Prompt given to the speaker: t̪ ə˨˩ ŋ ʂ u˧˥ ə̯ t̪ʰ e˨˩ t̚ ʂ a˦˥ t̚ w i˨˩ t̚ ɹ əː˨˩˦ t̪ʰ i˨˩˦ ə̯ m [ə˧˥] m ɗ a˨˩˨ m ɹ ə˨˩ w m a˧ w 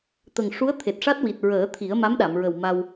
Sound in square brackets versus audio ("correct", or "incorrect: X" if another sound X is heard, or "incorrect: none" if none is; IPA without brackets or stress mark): incorrect: a˧˥